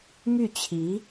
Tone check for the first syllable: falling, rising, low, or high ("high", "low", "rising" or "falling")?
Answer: falling